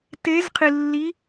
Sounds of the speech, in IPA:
te˨˥zqʰi˨˩lːi˨˥

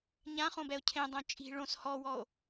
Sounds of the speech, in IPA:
ɲãχõbɛo̯ cʰẽdˤõ t͡ʃʼi̤ ɭõs hɔwɔo̯

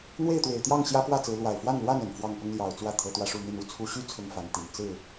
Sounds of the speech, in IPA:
n̪we˥˨ɪ̯t̪we˨˩ɪ̯t̪jɑ˥˨ŋ ɕjä˦pwä˥˨t͡sɹ̩˨˦ lwa˨˩ɪ̯fwa˥˨nlwa˥˨n ə˨˩nfwɑ˥˨ŋpʊ˦ŋ ljɑ˨˩ʊ̯t͡swä˥˨ t̪ʰɤ˨˦t̪wä˧ʂu˥˨n̪i˥˨n u˨˦t͡sʰu˨˦ɕy˦ t͡sʰʊ˦ŋfa˨˦nt̪i˨˩n t͡sɹ̩˥˨

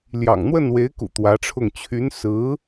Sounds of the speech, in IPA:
ljɑ̰˨˩ŋn̪wə˥˩nwe˧˥ɪ̯kṵ˨˩ t̪wä˧˥ʈ͡ʂʰʊ˥˩ŋ t͡ɕʰy˧˥nsɹ̩˧˥

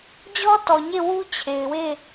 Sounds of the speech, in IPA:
d͡ʑɔ˦tɔ˨ɲe˦˨ wu˦t͡ɕʰe˨ɪ̯we˦˨

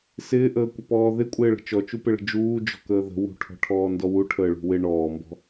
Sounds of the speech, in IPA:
sɪːʔəːkʷɪpɔː ðɪkʷʼɪːɭə̤ t͡ʃɔt͡ʃupɪɭə̤ d͡ʒuːd͡ʒɔ̤kəː ðə̤ wṳʈʰɔ̤ʈʰɔːndɔ wuʈʰəːɭṳ wɪ ɳɔːmbɔ̤

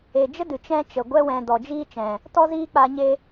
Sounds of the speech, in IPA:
e˨d͡ʒə˦ dɨ˨t͡ʃɛ̃˦t͡ʃə˨ ɡʷɛ˧wɛ̃˨ dɔ˨d͡ʒiː˦t͡ʃɛ̃˨ | tɔ˦ziː˦ k͡pa˧ ɲe˧

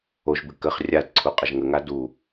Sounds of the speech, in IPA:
oʒbɨ kəχ rʲadǀʰu qʼəʒŋəŋa du

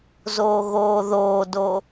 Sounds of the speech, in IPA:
zoːɣoːðoːdo

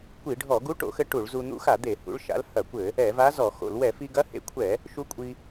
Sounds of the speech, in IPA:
kʷi˧˩˧ɖʱɔ˧˩˧ ɡu˧˥ʈo̰˧˩˧xɘ˧ ʈu˧˩˧ɭzu˧ n̪ṵ˧˥xa˧˩˧d̪e˧˩˧ hṵ˧˥ɭʃa̰˧˥l hɐ˧˩˧kʷɘ˧˩˧ | ɛ˧˩˧va˧˥ zɔ˧˩˧xo̰˧˩˧l wɛ˧˩˧fi˧ɡɐ˧˥ hḛ˧kʷʰɛ˧˩˧ | ʃu˧˥kʷʼi˧

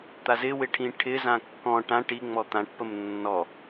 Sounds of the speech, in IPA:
t̪azɪwɪ ʈʰĩʈʰɪzã kːɔ̃ ʈã ʈiŋ͡mɔ t̪ãʈpəm nːɔ

